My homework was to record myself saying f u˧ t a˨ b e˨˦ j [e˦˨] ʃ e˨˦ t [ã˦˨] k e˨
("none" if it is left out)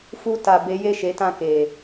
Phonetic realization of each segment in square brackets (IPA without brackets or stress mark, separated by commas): e˦˨, ã˦˨